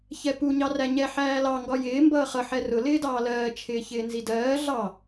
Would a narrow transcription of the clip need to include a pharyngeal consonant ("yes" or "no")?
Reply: yes